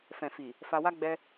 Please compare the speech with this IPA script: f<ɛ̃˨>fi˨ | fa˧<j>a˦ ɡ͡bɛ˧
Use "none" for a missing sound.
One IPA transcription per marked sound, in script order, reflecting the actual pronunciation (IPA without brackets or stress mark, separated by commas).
ɛ̃˨, w